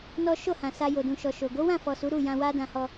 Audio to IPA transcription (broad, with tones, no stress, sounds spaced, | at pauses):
n ɔ˦ ʃ o˦˨ h ã˨ s a˧ j o˨ d ũ˨ ʃ ɔ˨ ʃ o˨ ɡ o˨˦ w ã˦˨ f ɔ˨ s u˨˦ ɾ u˦˨ j ã˧ w a˦ d ã˧ h ɔ˧